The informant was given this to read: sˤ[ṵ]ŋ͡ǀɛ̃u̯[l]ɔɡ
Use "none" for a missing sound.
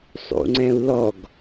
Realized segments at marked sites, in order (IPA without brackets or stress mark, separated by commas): ṵ, l